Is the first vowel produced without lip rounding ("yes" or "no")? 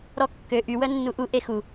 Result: no